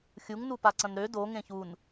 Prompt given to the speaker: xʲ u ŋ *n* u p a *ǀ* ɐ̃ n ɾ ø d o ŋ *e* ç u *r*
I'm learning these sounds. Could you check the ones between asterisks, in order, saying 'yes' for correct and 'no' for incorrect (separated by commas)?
yes, yes, no, no